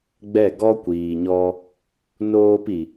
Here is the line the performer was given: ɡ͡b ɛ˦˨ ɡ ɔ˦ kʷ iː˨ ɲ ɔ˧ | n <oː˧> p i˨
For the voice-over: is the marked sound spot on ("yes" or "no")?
yes